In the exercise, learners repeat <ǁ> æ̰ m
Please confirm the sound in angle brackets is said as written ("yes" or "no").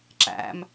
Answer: yes